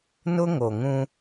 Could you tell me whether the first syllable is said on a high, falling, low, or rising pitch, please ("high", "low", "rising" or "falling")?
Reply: high